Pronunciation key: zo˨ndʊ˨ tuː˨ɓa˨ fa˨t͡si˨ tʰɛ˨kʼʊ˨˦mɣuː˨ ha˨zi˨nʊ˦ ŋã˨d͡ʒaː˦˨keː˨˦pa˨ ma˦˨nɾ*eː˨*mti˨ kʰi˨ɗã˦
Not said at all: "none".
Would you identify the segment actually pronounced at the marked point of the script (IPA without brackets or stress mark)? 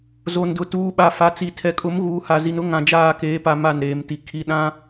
eː˨